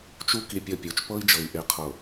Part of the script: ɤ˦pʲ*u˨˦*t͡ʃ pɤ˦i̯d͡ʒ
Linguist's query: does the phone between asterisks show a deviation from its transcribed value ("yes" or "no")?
no